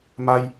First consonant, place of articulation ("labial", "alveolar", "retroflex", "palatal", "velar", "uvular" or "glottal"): labial